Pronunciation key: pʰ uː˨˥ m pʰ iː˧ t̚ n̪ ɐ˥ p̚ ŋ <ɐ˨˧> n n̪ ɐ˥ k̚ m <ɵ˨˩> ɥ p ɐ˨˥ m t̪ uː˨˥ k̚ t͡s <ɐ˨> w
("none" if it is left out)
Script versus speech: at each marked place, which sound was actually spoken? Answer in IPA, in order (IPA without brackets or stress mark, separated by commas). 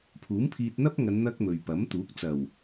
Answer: ɐ˨˧, ɵ˨, ɐ˨˩